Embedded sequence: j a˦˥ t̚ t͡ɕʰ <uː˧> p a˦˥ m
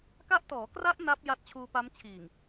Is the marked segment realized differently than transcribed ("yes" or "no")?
no